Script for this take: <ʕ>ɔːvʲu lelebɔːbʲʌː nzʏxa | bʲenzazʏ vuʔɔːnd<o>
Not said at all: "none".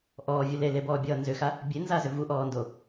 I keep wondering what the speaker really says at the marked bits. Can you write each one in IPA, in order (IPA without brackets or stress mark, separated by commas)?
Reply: ʔ, o